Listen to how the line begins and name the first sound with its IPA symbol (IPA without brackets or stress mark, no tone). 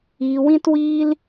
iː